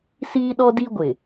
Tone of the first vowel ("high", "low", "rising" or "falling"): high